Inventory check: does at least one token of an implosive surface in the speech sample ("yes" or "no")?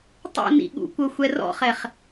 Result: yes